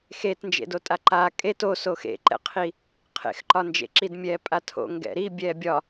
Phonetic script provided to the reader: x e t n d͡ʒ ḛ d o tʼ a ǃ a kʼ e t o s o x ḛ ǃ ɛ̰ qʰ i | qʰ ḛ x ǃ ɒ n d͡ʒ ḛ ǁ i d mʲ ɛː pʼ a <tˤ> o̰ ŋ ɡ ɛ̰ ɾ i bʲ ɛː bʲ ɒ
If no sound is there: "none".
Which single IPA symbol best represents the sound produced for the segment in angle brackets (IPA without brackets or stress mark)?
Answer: tʰ